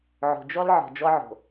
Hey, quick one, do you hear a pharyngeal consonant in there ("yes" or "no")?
yes